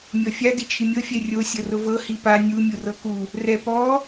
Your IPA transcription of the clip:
mʲɔfʲa dit͡ʃʰimʲɤ fʲɛrʲo sʲɤrʊvɤ hipa nʲu mʲurɤku | rɛ pɔ

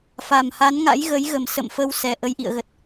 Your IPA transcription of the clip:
fa˨˩mha˨˦nŋa̰˧˥j ɣə˨˦jɣə˨˩m sə̰˧˨m fə˧wsɛ˨˩ ʔə˧jʔḭ˧˨ə̯ɣə˨˩t̚

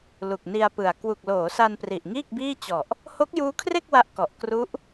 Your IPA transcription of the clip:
lu˨˩k̚ni˧a̯pɯ˨˩a̯ kwu˨˩k̚loː˩˦ sa˧npri˨˩ʔŋiː˥˩k̚biː˥˩ t͡ɕɔ˨˩ʔ | ho˦˥k̚juː˦˥kʰre˥˩k̚ wa˦˥ʔkɔ˨˩ʔ kru˦˥ʔ

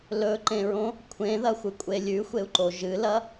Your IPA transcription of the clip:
lɵǃẽɹõ | kʷʰẽðɐxʷɨkʷʼe lʲʉxʷeu̯ǃo ʒɨlɐ

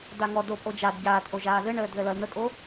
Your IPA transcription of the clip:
daŋɔdo pʼod͡ʒad ɟaːtʔo ʒaːðɘɳəːd ðəlʌl n̪əkʼo

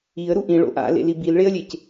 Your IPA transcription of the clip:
iə̯ɾu ʔĩɭo̰ ʔa̰lḛli bilɭeə̯lʲec

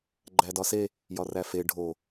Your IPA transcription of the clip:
ɡ͡ǃædɒse | jɒræfe ɖʱo

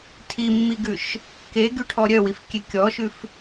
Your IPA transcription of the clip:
tʰimːiɡʉʃ | keɡyʈʰɔ ɾʲœwifkʲe kʲɔʃʉf

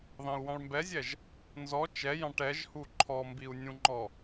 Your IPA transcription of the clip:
ðɑ̃u̯wɑ̃ɭmbɛzʲɛʒ | nzɔ t͡ʃɛjɑ̃ʈ ɛʒhu ǃʰɔmbiu̯nʲũŋ͡ǃɔ

